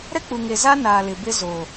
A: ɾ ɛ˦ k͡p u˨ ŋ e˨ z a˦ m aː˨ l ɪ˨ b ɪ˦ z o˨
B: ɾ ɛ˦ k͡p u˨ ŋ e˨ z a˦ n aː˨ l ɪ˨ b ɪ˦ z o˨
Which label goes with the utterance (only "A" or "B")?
B